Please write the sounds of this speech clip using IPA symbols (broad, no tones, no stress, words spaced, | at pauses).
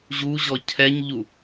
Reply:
ʑuʑɔ cʰɛɲʎu